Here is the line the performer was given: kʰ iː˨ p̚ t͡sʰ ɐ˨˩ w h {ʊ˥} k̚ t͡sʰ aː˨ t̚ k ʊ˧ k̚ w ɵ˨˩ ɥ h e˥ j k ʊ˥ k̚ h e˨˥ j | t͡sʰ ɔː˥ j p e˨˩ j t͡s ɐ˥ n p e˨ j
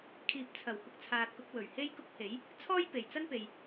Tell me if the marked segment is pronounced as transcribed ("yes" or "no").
no